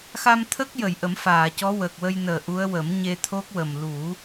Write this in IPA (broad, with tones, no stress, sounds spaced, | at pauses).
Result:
x a˧ m t̪ʰ ə˦˥ k̚ j ə˨˩˨ j ʔ ə˨˩˦ m f aː˨˩˨ c ɔ˧˥ w əː˨˩ k̚ w ə˧ j n əː˨˩ ʔ u˧˥ ə̯ w ə˨˩˦ m ɲ e˧ t̪ʰ o˦˥ k̚ w ə˨˩ m l u˨˩˦